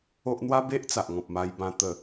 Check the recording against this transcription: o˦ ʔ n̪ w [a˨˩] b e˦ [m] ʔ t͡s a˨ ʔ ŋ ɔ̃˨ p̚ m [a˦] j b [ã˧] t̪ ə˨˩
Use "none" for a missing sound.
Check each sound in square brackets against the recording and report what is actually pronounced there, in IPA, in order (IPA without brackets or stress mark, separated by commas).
a˦, none, a˧, ã˧